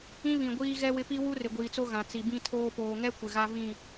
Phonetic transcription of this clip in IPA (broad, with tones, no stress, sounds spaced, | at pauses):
ĩ˦ β ĩ˨ ɡʷ iː˦ ɣ ɛ˦ w ɪ˦ p i˦ w u˦ r ɪ˨ ɡʷ iː˨ t͡s o˦ ɣ ã˨ t͡s i˨ b ĩ˦ tʰ oː˦ p oː˨ ŋ ɛ˦ kʷ ɪ˨ ɣ a˦ v ĩ˦˨